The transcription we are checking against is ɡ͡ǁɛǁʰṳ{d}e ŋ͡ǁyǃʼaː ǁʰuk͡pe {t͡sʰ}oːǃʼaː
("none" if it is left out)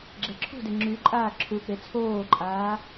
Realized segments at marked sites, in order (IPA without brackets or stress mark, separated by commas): d, t͡sʰ